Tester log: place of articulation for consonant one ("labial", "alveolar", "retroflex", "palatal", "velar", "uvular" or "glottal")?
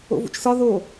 labial